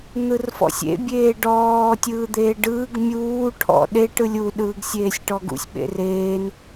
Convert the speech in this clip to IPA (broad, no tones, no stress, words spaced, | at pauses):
n̪ɯrfɔ̰sʲḛ bʲeːɖɔː tʲɯːd̪eːɖɯːɡ mʲuː ʈʰɔ̰ɗe ʈɯlʲu ɗɯːɡsʲeːsʲʈɔɡṵsʲ ɓḛreːn